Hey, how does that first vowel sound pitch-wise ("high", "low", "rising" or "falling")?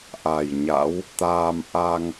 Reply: low